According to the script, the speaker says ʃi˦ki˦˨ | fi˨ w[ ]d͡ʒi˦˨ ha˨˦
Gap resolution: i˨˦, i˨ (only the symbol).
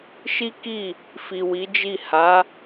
i˨˦